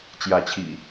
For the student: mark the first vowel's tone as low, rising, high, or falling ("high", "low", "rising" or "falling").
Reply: rising